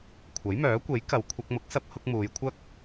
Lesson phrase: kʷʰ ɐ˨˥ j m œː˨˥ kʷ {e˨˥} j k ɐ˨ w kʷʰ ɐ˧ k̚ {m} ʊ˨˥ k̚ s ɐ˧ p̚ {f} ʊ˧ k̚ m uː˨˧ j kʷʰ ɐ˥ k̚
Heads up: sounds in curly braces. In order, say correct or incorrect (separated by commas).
correct, correct, incorrect